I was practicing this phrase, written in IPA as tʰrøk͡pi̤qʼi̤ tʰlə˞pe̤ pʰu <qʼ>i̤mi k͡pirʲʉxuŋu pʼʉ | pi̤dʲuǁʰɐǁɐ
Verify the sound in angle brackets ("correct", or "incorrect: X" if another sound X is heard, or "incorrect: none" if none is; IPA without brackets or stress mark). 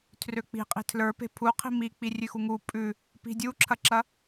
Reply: incorrect: qʰ